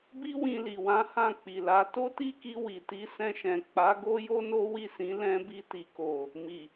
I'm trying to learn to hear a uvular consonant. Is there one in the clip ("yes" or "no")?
no